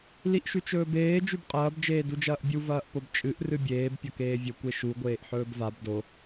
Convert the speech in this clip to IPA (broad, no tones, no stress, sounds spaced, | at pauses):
l i ʔ ʃ ʉ t͡ʃ ɵː b eː d͡ʒ ʉ b qʼ ɐː b d͡ʒ eː d u d͡ʒ ɐː ʔ bʲ u v ɐː ʔ p o b t͡ʃʼ ɨ ʔ r ɨ bʲ eː b pʲ ɐ k eː vʲ ɵ kʷ e ʃ u ɡʷ eː ʔ ħ ɵː b v a b d o